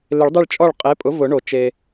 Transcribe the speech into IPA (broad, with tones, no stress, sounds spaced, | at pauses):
l ɪ˨˩˦ ɭ dˤ ɪ˦˨ ɭ t͡ʃʼ ɔ˦˨ ɭ qʼ e˩˥ pʼ ʊ˩˥ v ʊ˨˩˦ ɳ o˩ t͡ʃ e˩